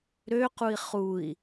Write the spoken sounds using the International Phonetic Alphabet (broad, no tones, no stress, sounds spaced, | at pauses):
ɾ ø q u i̯ χ u i̯